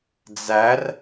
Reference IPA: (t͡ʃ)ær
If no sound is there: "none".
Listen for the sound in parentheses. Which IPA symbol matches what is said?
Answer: d͡z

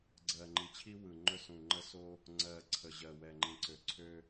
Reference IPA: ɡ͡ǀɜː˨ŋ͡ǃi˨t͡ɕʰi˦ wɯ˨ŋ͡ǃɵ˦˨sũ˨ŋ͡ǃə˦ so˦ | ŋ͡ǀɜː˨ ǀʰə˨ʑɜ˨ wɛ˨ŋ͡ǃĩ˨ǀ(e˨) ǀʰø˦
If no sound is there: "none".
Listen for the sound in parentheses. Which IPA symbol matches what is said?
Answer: ø˨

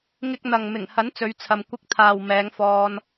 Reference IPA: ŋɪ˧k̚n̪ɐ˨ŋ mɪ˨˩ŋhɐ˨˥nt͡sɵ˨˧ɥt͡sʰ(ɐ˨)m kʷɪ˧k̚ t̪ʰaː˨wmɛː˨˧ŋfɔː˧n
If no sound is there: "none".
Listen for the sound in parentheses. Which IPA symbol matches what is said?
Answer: ɐ˨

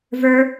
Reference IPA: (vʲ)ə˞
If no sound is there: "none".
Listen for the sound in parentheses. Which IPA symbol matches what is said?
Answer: v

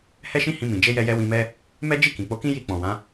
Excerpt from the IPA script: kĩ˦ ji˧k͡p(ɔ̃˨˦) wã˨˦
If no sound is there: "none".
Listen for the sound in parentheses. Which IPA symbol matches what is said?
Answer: ɔ̃˨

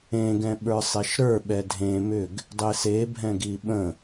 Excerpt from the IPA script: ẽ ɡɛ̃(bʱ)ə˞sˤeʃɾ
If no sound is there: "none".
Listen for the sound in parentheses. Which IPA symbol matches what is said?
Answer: ɓ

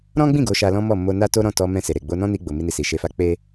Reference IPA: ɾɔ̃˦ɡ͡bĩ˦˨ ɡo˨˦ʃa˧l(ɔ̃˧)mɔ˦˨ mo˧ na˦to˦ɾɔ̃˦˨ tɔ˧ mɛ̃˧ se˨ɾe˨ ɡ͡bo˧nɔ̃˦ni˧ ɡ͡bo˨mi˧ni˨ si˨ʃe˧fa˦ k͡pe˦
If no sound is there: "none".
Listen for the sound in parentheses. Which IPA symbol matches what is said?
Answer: ɔ̃˦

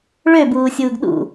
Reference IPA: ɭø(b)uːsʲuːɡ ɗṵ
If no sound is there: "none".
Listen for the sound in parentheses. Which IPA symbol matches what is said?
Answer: b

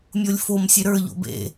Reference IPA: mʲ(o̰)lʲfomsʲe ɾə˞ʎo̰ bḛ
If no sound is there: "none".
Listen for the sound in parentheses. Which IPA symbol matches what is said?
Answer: o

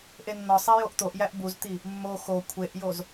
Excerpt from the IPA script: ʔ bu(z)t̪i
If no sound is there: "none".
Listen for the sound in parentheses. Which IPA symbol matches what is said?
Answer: z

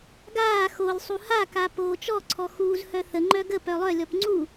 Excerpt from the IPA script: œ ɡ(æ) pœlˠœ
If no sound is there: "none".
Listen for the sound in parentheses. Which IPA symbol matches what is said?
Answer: ə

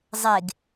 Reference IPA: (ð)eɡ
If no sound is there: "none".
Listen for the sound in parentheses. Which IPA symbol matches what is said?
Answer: zˤ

